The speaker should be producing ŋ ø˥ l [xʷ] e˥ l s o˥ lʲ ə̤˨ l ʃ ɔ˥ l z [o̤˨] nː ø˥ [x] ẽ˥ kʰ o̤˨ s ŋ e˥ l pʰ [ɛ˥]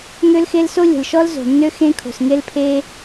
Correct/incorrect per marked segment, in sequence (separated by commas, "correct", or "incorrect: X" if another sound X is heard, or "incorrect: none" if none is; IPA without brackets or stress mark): incorrect: x, correct, correct, incorrect: e˥